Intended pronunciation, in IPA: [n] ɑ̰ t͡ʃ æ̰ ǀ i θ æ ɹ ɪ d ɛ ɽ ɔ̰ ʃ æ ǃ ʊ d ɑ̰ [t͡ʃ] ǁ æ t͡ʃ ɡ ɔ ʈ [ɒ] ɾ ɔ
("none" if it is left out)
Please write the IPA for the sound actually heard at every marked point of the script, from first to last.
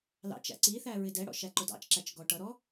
l, t͡ʃ, ʌ

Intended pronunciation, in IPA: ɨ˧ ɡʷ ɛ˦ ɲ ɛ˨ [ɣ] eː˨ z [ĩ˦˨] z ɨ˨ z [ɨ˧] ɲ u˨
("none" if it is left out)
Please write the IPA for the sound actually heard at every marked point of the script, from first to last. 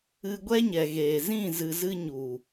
ɣ, ĩ˦˨, ɨ˧

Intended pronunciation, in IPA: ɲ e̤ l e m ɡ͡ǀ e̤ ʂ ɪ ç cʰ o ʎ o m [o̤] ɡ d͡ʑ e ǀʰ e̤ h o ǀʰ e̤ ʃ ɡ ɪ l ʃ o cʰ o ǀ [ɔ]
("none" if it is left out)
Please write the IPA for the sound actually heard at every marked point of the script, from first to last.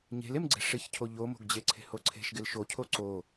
o̤, o

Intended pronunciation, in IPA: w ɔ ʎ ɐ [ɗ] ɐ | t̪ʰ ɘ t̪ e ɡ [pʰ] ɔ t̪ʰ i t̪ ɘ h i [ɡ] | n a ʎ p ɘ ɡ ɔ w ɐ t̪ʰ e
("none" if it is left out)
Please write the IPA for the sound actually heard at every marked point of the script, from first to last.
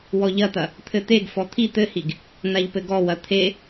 t̪, f, ɡ

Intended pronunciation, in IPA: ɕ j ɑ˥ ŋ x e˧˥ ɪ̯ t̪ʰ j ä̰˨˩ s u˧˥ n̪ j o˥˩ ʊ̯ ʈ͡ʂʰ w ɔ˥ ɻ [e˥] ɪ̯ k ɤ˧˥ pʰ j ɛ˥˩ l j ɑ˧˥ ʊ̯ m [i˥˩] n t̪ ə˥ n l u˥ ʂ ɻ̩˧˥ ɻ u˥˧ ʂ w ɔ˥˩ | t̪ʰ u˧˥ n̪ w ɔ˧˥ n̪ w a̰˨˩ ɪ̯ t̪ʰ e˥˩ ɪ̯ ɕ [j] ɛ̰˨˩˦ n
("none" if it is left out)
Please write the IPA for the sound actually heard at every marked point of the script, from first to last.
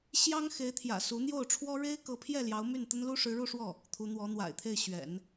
e˥, y˥˩, ɥ

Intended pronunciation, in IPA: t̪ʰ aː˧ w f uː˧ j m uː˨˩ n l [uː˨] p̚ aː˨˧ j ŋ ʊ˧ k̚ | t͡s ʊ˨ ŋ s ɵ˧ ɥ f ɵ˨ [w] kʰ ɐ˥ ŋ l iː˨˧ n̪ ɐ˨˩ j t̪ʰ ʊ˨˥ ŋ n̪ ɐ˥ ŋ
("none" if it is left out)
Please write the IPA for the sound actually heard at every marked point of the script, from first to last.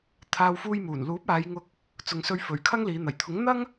uː˨˥, ɥ

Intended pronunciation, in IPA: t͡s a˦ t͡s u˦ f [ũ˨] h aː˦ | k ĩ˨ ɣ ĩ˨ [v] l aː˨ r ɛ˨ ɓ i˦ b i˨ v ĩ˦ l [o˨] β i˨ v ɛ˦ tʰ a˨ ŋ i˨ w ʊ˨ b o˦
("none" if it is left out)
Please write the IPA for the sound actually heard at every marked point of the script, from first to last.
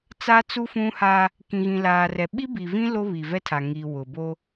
ũ˦, none, o˦

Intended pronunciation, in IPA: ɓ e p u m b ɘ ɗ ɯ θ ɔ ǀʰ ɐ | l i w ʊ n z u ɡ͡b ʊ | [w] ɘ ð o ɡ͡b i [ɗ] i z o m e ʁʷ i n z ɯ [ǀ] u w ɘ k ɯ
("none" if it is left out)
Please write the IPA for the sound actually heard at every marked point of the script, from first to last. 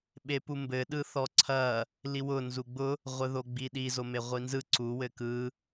ʁʷ, ɗ, ǀ

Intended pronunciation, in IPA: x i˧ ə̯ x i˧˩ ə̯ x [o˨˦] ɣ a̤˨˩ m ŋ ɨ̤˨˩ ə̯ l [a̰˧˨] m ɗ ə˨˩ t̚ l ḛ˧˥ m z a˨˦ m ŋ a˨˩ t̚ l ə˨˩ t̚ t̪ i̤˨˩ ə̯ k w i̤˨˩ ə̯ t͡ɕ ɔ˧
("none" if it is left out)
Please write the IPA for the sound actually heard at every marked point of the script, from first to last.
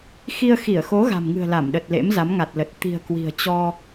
o˨˦, a˧˩

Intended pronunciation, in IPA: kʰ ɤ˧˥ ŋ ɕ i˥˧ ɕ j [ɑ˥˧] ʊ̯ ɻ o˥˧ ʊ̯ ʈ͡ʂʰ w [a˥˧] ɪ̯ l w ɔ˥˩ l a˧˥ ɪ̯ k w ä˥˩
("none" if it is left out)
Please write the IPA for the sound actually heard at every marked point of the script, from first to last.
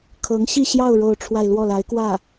ɑ˥˧, a˥˧

